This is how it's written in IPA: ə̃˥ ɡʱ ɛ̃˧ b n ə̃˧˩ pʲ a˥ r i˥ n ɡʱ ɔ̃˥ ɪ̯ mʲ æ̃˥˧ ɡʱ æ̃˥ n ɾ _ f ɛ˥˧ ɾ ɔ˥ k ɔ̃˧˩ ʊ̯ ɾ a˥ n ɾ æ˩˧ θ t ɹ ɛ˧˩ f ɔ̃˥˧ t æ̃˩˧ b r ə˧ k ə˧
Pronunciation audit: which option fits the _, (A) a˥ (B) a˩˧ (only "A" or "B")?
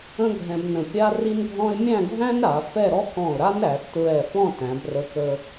B